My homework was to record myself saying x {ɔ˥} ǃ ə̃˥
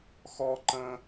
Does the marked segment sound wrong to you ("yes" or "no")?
no